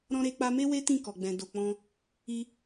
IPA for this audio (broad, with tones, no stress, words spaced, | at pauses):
ɾɔ̃˧ɾe˧k͡pa˧me˦ we˦tĩ˦˨ kɔ˨ɡ͡bɛ̃˨ do˨k͡pɔ̃˧ | i˧